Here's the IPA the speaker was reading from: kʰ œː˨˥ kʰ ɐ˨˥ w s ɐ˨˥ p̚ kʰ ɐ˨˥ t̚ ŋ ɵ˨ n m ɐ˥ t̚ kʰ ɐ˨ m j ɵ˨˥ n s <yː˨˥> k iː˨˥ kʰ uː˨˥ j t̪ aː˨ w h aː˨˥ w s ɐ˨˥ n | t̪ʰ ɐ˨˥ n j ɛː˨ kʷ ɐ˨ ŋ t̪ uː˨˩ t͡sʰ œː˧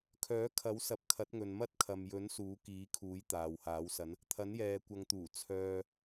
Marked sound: incorrect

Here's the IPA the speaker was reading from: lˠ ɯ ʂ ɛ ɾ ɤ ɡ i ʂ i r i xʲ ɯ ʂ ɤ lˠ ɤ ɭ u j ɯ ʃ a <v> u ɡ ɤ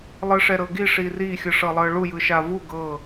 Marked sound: correct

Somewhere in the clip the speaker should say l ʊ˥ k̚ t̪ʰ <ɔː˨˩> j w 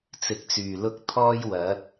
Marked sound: incorrect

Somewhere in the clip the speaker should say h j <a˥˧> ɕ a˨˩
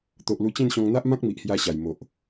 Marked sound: incorrect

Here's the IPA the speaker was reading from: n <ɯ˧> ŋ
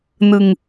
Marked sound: correct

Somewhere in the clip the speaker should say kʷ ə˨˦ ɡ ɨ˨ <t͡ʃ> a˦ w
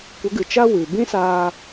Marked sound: correct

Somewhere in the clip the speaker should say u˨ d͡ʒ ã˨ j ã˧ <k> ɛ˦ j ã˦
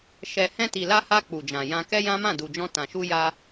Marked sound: correct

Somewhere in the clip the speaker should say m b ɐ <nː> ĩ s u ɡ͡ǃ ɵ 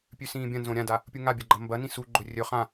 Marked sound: incorrect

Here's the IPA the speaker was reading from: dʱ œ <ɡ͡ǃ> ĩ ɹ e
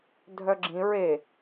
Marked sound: incorrect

